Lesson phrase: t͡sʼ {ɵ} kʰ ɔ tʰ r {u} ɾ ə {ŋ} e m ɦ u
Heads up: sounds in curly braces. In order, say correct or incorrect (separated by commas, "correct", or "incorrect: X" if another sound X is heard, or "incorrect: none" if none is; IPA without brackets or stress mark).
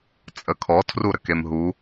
incorrect: ə, correct, incorrect: k